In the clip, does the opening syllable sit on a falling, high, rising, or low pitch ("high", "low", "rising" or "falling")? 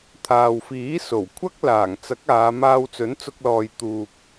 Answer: low